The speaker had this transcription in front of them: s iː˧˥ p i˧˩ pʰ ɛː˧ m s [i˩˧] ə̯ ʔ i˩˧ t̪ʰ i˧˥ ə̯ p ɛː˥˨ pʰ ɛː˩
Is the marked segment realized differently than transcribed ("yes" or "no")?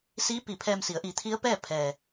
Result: no